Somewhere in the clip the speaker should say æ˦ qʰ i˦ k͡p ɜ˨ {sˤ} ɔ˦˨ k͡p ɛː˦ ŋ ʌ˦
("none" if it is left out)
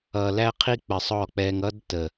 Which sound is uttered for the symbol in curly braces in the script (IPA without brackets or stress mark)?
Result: sˤ